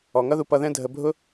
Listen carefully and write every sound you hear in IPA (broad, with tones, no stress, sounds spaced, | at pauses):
ɔ˨ ŋ ʌ˦ ð u˧ p ʌ˧ ð ɛ̃˦ dʱ ə˧ bʱ ʊ˦